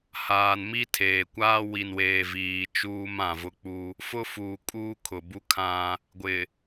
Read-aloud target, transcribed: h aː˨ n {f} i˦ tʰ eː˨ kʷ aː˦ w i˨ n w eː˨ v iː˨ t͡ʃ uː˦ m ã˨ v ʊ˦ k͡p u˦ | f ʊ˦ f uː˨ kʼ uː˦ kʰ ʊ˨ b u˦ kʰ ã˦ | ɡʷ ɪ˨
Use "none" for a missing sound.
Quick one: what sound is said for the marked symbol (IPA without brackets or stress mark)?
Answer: m